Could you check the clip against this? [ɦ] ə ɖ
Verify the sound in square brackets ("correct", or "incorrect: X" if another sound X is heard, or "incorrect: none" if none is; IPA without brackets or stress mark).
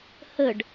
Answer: incorrect: h